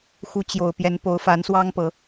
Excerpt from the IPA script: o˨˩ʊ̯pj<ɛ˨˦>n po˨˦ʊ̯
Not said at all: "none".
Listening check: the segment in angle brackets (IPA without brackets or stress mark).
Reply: ɛ˨˦